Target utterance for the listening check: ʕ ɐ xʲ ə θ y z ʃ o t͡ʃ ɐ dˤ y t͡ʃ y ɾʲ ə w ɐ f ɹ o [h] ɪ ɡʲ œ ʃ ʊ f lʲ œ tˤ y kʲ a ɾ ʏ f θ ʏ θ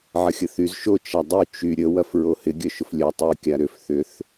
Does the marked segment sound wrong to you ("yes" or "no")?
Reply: no